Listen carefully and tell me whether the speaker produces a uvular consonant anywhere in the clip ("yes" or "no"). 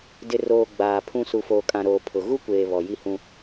no